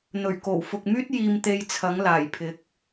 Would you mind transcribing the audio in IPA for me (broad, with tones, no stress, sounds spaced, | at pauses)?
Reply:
n̪ ɵ˨˩ ɥ k o˨˩ w f ʊ˨ k̚ m yː˥ t̚ j iː˧ m t̪ e˧ j t͡sʰ ɐ˨˥ ŋ l aː˨˩ j pʰ ɪ˨˥ k̚